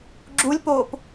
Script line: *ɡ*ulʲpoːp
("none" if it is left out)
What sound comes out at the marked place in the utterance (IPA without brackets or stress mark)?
ɡ͡ǁ